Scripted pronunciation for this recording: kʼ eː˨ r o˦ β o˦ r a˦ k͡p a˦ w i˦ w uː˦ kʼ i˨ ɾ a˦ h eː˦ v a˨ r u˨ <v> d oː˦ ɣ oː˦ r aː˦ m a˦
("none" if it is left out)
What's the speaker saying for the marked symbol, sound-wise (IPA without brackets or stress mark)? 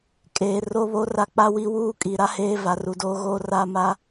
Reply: none